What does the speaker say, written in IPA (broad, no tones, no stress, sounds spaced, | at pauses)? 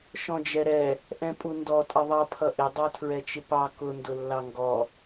ʃ ɔ̃ d͡ʒ ɛ ɾ ɛ | ʔ ɛ̃ pʼ u n d ɔ tʼ ə ðˤ ʌ pʰ ʌ ʔ ɪ dˤ ə˞ tʰ ɹ ɛ t͡ʃ ɪ p ɑ k ʊ n d ʊ lː ɑ ŋ ɡ ɔ